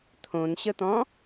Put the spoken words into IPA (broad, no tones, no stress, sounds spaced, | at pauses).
t̪ʰ õ n ɕ ə t̪ ɔ̃